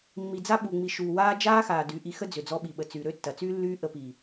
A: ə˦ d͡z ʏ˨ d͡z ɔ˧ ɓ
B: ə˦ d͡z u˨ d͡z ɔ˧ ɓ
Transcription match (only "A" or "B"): A